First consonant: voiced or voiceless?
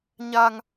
voiced